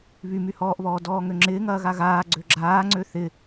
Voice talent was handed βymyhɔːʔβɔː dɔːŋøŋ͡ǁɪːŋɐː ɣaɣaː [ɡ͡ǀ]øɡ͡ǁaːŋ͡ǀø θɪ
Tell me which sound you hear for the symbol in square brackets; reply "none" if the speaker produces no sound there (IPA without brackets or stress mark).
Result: ɡ͡ǀ